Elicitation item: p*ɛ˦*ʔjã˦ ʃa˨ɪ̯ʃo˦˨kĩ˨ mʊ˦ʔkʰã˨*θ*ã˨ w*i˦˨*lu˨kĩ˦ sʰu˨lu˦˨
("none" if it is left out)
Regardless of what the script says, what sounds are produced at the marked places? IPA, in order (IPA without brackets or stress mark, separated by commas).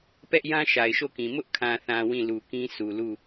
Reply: ɛ˦, θ, ĩ˦˨